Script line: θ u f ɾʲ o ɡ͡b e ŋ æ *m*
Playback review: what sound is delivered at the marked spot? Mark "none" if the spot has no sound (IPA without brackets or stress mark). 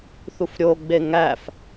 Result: f